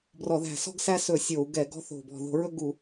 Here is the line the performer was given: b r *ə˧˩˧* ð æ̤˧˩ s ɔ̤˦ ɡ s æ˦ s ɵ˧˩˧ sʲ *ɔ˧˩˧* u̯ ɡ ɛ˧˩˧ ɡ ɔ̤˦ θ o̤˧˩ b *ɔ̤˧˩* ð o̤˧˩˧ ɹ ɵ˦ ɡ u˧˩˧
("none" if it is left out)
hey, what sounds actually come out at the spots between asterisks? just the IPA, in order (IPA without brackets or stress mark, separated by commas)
ɔ˧˩˧, o˧˩˧, ɔ̤˧˩